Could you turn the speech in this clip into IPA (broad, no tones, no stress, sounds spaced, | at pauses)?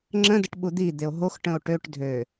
ŋ͡ǁ ə̃ d ə ʈ ɓ u d̪ i d̪ e o̯ ɦ o x ʈ ə̃ o̯ ʈ ø ʈ dʱ ø